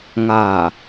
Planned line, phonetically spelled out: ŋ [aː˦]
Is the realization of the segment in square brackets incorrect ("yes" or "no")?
yes